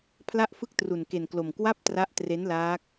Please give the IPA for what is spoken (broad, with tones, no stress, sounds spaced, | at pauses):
pʰ l a˥˩ ʔ f ɯ˥˩ k̚ t r u˧ n k e˧ n k l o˧ m k w a˥˩ p̚ t r a˦˥ ʔ t r e˦˥ n l aː˦˥ k̚